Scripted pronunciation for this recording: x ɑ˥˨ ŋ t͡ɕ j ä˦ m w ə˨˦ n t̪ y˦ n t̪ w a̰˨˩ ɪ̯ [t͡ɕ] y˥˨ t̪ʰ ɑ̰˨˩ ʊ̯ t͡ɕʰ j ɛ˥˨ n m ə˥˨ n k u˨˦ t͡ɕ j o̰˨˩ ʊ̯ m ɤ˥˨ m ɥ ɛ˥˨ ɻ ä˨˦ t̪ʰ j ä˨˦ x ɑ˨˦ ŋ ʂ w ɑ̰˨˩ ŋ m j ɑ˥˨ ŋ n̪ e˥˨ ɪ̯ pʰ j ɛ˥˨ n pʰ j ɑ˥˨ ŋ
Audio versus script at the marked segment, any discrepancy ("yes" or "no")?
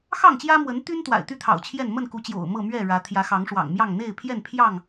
yes